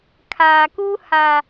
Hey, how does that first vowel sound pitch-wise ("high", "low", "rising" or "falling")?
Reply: low